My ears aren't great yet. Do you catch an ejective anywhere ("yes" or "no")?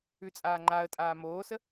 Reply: yes